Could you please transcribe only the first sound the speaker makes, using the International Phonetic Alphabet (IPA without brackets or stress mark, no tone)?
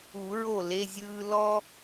u